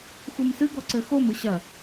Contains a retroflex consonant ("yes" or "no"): no